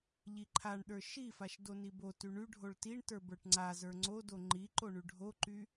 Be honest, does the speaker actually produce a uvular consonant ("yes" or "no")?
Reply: no